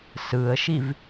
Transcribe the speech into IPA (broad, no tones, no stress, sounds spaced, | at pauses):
s ɯ ə̯ ʃ i v